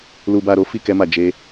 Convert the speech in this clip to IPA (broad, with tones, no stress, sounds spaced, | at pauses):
l u˧ b a˧ ɾ o˦ f i˦˨ k ɛ˧ m a˨ d͡ʒ e˧